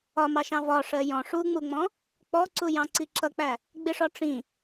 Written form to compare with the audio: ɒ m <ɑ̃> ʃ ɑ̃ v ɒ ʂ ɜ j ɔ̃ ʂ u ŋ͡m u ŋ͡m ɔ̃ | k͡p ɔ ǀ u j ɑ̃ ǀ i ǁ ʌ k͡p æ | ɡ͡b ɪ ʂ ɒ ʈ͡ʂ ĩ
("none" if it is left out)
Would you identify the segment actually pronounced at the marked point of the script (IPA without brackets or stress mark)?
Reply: ɑ